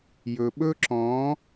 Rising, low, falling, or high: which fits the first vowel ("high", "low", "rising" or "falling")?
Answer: low